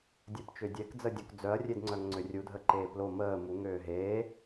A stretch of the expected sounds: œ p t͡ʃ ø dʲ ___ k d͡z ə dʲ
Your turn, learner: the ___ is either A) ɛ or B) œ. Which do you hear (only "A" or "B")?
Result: A